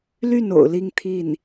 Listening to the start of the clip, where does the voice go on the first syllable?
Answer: falling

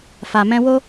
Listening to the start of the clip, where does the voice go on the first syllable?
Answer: low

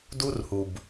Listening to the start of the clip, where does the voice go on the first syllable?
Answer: high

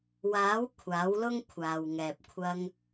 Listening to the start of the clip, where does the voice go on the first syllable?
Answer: rising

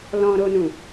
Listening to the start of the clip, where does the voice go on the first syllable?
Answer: high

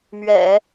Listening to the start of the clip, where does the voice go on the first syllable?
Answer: low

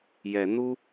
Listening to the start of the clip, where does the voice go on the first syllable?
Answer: rising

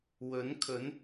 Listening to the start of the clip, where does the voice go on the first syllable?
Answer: rising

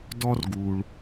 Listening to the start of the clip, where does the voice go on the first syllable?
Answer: high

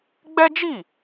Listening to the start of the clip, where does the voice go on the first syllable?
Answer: high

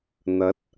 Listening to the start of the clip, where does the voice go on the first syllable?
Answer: rising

